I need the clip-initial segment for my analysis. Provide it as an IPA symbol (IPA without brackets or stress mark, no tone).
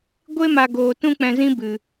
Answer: ɡʷ